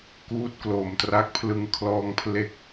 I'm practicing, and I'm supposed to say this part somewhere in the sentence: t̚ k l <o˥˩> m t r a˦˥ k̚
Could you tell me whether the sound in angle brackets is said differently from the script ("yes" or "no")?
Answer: yes